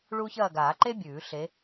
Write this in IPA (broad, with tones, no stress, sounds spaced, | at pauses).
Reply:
ɭ u˥ ç ɐː˥˧ ɡ aː˨˩˦ ǃ e˥ bʲ ʉː˨˩˦ ɬ e˨˦